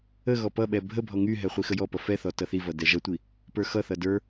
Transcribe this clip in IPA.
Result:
ə ɣ ɔ p ʌ ɓ ɛ bʱ ə bʱ ɔ ŋ y ɦ ɛ χʷ i x ə j ɔ p ʌ f ɛ θ ɔ t ʌ θ i v ʌ d ɛ ʒ ʌ tʷ i | p ə˞ x ʌ θ ʌ d ə˞

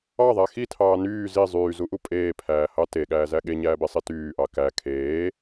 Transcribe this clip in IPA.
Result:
ɑ ðˤ æ x i tʰ ɑː n yː z i zˤ yː z u ʔ u pʼ eː pʰ æː h ɑ t e ɠ æː z æ ɠ e ɲ æː b e sˤ i t yː ʔ ɑ k æ kʰ eː

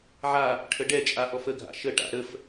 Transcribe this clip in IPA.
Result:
ʕ a | ʈʰ ə ɖ ɛ t͡ʃʼ a ʔ ɔ f ə ɡʱ a̰ ʃ ə ʈ a̰ ɾ ə f

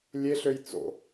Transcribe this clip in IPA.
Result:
lʲ e ɬ ø j t͡s o̰

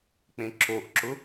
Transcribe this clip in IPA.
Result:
k͡p ẽ ǁ o ʔ ǁ ʊ

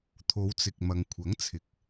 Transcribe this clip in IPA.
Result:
t̪ʰ o˨˧ w t͡s ɪ˨ k̚ m ɐ˨ ŋ kʷʰ ɐ˨˥ ŋ t͡sʰ ɪ˨˥ k̚

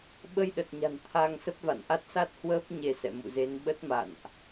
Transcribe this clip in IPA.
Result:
ɓ ə˧ j ɗ ə˨˩ t̚ ɲ a̤˨˩ n t̪ʰ a˧ ŋ s ə˦˥ p̚ v a̰˧˨ n ʔ a˦˥ t̚ s a˦˥ t̚ h w əː˦˥ p̚ ɲ e˧ s ɛ̰˧˨ m ṵ˧˨ z e˨˦ n ɓ ə˦˥ t̚ m a̰˧˨ n ʔ

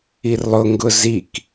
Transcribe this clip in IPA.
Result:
i r lˠ ʊ ŋ ɡ ʊ z i k

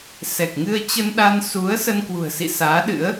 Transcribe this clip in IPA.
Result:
s ɛ˨˩ k̚ ŋ ɨ˧ ə̯ t͡ɕ ə˧ n ɗ a˧ n s u˨˦ ə̯ s ə˧ n k w ṳ˨˩ ə̯ s ḭ˧˨ s aː˨˦ ɗ ɨ̰˧˥ ə̯

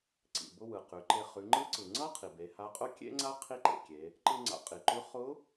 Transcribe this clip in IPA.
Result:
ǀ ḭ˩ b ʊ˧ w ɯ˩ q ʉ˩˧ ǃ e˧ χ ʉ˩˧ ŋ͡ǃ ɯ˧˥ ǀ ɯ˩ ŋ͡ǀ ʌ˥ qʰ i˩ b e˩˧ h a˧˥ qʼ ʊ˥ kʲ ḛ˥ ŋ͡ǀ a˥ qʰ i˥ ǃ ḛ˩ kʲ e˩˧ | ǃ ɯ˧ ŋ͡ǀ a̰˩˧ qʼ i˩ ǃ ʉ˧˥ χ ʊ˧˥

